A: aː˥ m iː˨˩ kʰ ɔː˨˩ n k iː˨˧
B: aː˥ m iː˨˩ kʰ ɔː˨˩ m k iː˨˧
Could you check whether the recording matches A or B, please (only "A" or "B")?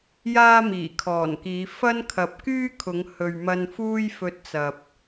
A